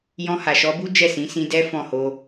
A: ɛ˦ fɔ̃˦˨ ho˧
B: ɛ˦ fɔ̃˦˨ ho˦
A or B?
A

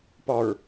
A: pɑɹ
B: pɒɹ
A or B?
B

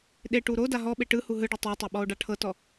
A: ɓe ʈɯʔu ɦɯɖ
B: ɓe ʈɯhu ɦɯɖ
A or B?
B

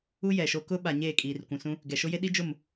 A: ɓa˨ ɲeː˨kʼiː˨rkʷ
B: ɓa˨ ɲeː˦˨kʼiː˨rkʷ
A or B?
B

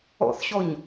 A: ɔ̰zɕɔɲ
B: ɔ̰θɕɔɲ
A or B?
B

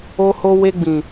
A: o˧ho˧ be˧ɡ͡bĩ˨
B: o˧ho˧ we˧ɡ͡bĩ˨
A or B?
B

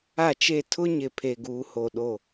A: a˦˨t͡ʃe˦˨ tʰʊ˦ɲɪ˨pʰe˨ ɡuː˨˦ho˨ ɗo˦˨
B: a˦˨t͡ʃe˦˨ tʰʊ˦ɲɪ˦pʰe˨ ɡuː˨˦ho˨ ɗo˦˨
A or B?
A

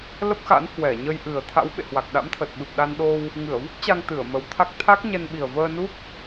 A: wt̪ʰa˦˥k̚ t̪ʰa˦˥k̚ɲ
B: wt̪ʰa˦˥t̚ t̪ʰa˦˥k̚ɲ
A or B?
A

